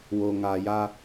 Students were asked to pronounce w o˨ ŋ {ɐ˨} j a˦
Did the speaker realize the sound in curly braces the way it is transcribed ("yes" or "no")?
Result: no